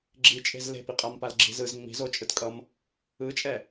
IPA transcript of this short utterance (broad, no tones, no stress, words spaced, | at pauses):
ɡ͡ǁit͡ʃʼe̤z le̤piqʼampal ɡ͡ǁi̤zɯz ŋ͡mi̤zot͡ʃʼɯtkʼʌm | ɯt͡ʃʼɛ